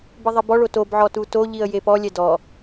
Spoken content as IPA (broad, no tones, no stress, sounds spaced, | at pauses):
b i ðˤ i b ɔ ɭ o t o b ʕ ɔ t u t o ʎ i ə̯ j e p ɔ lʲ ɛ d ɔ